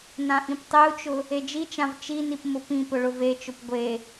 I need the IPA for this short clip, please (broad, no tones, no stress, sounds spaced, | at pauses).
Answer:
n ã ʔ ĩ p tˤ e u̯ t͡ʃ ʊ | e d͡ʒ i t͡ʃ ã v t͡ʃ i n i p m ʊ p ĩ p ʊ ɭ ʊ v e t͡ʃ ʊ p ɡʷ e